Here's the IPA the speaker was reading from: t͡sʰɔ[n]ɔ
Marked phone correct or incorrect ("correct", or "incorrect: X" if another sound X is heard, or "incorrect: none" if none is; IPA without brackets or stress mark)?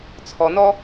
correct